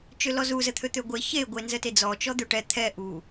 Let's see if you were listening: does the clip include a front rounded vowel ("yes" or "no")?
yes